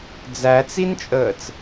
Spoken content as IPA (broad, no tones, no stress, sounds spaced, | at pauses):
d͡z æ t͡s i n t͡ʃʼ əː t͡s